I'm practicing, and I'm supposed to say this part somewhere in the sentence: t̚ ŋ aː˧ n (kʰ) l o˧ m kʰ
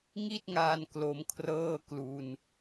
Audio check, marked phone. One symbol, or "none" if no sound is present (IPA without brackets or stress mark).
k